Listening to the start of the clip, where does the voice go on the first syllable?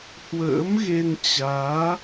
rising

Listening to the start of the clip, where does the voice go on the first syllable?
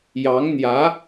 rising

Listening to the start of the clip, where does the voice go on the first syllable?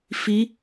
rising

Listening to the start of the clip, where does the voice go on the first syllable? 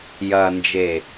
low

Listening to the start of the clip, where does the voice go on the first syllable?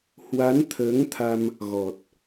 rising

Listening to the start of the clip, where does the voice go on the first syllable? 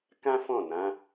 high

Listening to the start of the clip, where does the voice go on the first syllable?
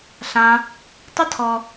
high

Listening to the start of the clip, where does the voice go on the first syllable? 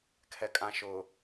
low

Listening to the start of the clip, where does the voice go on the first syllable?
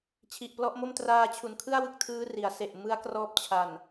low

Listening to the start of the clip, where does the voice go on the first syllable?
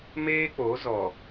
high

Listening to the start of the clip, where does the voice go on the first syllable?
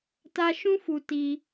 high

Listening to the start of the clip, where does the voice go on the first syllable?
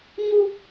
high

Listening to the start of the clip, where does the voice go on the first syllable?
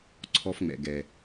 high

